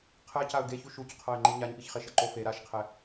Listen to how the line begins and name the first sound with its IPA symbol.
qʰ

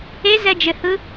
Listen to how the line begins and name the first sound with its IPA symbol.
e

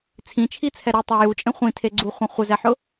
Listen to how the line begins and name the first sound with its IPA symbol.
t͡sʰ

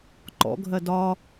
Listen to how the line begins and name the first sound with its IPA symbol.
ǃ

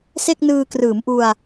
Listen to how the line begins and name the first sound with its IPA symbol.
s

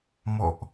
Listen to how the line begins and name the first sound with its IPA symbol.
m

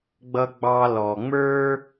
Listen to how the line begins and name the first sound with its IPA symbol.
ɡ͡b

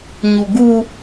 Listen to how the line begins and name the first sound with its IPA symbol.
ɲ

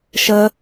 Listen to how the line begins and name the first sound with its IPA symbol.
ʃ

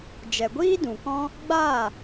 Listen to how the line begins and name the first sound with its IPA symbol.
d͡ʒ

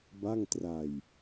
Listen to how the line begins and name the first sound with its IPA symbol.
b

